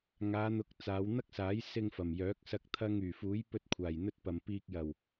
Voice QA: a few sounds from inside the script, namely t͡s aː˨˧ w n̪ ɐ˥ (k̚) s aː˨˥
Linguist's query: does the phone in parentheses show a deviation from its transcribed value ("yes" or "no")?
no